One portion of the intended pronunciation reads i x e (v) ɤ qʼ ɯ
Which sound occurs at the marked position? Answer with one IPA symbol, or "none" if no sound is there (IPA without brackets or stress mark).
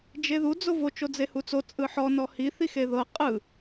ð